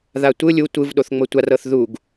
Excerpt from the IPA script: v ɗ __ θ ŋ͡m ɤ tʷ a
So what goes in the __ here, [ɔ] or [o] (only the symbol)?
o